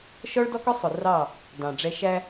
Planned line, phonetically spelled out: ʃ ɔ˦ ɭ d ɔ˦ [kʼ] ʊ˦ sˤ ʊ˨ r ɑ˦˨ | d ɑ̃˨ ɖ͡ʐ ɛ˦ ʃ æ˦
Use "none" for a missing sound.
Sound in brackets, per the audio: k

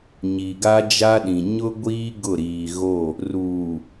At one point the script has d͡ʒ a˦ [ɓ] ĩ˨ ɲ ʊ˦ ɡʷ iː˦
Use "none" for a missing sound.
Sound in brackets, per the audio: ɗ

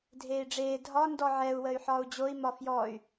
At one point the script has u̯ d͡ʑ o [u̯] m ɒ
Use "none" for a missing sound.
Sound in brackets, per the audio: i̯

